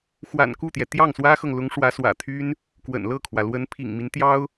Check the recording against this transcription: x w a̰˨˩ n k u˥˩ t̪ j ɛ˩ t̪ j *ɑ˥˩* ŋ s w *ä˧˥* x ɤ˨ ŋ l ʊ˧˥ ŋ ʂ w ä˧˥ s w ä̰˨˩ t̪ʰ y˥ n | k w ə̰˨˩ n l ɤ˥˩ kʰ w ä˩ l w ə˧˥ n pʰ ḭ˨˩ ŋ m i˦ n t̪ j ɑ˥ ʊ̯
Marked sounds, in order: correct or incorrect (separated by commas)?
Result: correct, incorrect